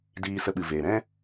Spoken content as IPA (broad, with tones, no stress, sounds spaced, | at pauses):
d iː˧ s ə˧ ɓ ɨ˨ v eː˨ ɾ ɛ̃˦